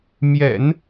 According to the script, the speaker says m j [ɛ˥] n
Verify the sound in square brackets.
incorrect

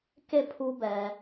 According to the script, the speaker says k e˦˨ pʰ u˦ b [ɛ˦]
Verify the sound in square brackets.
incorrect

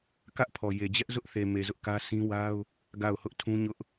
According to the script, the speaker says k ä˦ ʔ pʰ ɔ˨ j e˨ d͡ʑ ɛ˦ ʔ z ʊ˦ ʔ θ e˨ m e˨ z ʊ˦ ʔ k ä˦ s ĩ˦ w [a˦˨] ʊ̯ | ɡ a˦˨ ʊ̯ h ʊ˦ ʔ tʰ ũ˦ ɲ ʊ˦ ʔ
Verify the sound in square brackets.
incorrect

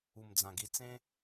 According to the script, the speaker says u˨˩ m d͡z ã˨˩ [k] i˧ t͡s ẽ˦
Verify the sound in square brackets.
incorrect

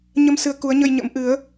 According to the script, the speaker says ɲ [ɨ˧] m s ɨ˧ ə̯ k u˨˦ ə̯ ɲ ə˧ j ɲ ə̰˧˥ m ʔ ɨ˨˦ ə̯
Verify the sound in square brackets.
incorrect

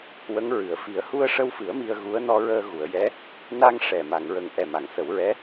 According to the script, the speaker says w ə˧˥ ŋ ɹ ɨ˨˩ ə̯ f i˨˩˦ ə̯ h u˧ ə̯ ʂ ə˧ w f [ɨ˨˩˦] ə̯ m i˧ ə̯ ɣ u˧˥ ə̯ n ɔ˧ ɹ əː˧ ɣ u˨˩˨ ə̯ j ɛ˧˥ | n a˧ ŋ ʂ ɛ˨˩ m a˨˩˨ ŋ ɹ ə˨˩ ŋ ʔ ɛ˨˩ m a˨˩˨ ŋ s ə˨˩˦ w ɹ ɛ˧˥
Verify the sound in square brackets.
correct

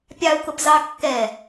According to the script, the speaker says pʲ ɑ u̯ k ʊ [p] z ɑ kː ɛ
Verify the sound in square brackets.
correct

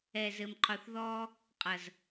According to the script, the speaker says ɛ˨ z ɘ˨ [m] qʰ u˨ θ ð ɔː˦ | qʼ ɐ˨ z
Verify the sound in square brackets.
correct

